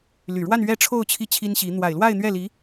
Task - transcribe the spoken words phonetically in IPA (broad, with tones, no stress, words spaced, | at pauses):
ly˨˩ɻwa˥˧n ɥɛ˥˧ʈ͡ʂʰo˥˧ʊ̯ t͡ɕʰi˥˩t͡ɕʰi˥nɕi˧˥ n̪wa˨˩ɪ̯lwa˥˧ɪ̯n̪ɥɛ˥˩li˧˥